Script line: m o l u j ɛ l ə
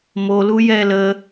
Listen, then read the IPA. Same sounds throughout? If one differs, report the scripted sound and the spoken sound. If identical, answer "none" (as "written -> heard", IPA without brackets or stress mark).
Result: none